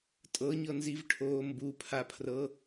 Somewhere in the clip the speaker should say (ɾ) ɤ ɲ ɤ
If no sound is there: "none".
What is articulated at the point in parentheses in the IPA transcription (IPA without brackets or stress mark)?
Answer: tʼ